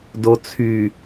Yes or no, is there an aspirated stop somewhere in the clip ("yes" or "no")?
yes